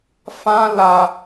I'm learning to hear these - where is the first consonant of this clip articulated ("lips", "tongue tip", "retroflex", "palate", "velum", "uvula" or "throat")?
lips